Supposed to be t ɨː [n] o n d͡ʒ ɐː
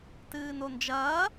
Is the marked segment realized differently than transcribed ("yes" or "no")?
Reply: no